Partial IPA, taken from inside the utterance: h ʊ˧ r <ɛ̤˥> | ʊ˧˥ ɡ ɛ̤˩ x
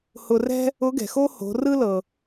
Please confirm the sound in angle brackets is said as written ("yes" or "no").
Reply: yes